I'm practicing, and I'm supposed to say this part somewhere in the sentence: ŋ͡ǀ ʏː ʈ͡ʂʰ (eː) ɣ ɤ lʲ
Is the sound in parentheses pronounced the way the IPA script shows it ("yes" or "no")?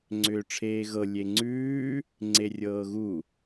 yes